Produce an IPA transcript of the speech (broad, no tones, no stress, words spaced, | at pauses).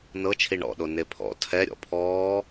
nɤt͡ʃʰi ɳɔ̰ɗo nepʰɔ̰ tʰɛ ɾʲɔ̰pʰɔː